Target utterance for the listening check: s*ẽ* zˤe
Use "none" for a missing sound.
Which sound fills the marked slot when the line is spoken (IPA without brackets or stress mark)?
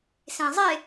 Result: ẽ